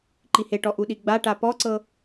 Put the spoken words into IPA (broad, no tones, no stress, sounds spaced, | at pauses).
ǃ i h e ʈ ɔ ʔ u ɗ i ɡ͡b a ʈ a p ɔ ǀ ɤ